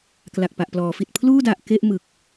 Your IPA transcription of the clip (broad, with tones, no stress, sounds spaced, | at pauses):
k l a˨˩ k̚ p a˨˩ ʔ p l ɔː˩˦ f i˨˩ t̚ pʰ l uː˥˩ d a˨˩ ʔ k e˥˩ ʔ m ɯ˨˩ k̚